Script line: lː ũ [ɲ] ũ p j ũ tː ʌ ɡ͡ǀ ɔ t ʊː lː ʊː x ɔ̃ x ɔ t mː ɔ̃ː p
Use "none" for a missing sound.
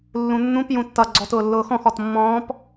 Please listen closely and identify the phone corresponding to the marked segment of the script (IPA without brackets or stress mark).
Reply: nː